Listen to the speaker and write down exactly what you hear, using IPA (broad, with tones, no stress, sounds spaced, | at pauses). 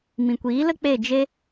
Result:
m ĩ˨ kʷ iː˨˦ l ə˦ k͡p e˦˨ d͡ʒ e˦